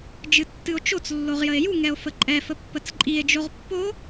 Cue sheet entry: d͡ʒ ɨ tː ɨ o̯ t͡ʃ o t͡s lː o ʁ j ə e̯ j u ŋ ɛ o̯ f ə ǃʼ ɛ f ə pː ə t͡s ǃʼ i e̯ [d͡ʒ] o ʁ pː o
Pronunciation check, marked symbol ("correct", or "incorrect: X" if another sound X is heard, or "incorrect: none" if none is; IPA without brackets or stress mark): correct